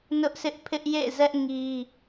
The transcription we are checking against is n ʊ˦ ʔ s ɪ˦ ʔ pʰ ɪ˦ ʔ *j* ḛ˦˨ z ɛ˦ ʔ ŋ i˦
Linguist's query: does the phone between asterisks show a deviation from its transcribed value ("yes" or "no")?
no